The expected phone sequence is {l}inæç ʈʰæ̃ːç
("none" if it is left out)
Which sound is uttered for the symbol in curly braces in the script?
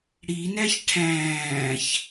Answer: ɽ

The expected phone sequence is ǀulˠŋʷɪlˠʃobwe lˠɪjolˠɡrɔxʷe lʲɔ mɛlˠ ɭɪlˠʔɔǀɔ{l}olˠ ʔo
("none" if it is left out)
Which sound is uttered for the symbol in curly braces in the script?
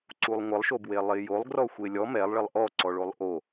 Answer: ɭ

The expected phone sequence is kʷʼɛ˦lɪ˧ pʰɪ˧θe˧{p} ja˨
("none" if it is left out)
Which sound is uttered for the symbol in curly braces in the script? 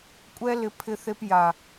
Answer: p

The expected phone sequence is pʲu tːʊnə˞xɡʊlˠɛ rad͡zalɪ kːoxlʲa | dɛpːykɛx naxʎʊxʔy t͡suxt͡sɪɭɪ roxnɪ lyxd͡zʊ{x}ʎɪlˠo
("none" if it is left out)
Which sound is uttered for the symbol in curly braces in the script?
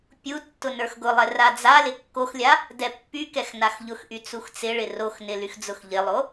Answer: x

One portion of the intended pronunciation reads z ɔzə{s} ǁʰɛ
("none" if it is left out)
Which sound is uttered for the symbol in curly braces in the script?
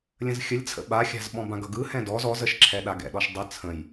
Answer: ʃ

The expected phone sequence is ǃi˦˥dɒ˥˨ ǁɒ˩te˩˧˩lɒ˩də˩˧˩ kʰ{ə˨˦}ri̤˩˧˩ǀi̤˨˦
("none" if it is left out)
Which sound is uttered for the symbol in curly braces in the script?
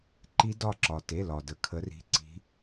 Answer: ə˨˦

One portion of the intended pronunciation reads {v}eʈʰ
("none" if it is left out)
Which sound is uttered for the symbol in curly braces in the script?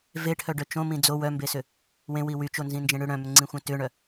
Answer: v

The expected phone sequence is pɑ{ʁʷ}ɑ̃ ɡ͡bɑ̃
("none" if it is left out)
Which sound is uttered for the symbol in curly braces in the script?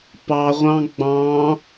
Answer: ʁʷ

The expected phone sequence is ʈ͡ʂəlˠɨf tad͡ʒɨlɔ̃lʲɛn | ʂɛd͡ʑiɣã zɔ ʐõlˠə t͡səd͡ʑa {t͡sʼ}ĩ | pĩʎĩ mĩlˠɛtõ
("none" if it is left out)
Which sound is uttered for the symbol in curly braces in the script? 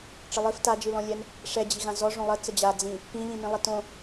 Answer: d͡z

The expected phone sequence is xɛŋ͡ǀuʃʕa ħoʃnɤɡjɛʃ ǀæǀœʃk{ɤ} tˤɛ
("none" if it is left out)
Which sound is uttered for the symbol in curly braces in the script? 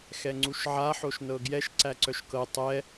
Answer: ɤ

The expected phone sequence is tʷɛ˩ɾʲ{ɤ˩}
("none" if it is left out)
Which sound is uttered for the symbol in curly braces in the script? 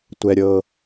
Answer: ɤ˩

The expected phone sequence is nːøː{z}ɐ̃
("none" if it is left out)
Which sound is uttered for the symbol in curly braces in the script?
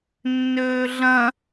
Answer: ɮ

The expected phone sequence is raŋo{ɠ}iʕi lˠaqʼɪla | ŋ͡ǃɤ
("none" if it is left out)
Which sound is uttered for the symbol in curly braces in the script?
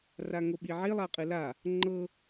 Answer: ɓ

